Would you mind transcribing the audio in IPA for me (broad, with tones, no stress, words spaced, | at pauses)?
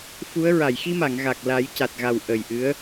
fu˧˥ə̯ ɹa˨˩˨jxi˧ma˨˩˨ŋ ɣa˨˩k̚la˨˩˦jca˨˩t̚ɣa˨˩w ʔə˨˩jʔɨ˧˥ə̯